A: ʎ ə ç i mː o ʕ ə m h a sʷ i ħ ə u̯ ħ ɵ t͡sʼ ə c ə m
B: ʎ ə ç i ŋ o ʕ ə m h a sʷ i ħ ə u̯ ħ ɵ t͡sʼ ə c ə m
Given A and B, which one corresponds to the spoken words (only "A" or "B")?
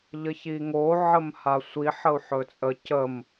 B